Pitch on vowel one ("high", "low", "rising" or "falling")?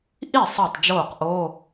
falling